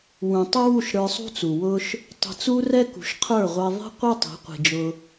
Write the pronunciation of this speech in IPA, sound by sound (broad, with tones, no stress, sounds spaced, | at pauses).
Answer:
w ũ˨ tˤ ɪ˦ w u˦˨ ʃ ɾ ə˞˧ sˤ ṳ˦ t͡s u˨ w ʊ˧ ʃ | tˤ ə̤˧ t͡s u˦ r ɛ˦ k ṳ˨ ʃ qʰ ə˞˦˨ ʁʷ ɛ˧ ðˤ i̤˦ qʷ ɪ˦ tˤ i̤˨˦ qʷ i̤˨ d͡ʒ ʊ˧